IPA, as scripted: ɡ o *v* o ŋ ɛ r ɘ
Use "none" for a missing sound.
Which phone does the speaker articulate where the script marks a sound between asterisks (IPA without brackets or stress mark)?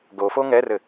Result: f